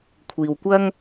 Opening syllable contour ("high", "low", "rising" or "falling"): low